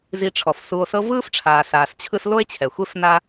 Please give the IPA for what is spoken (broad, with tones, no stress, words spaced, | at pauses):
zi˨ʈ͡ʂʰɔ˩fsu˨o̯ sɤ˦vɯː˥fʈ͡ʂʰaː˨ saː˨st͡ɕʰɯ˦s lo˦e̯t͡ɕʰɛ˩xʷe˦f na˦